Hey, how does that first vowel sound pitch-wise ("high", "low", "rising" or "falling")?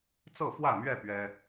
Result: falling